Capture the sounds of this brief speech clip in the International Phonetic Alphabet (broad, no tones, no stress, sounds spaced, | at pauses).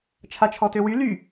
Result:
t͡ʃʰ a t͡ʃʰ ɔ t ø w y l y